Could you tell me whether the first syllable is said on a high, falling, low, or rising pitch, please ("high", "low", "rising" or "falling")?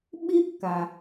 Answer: high